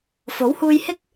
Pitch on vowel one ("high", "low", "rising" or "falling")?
rising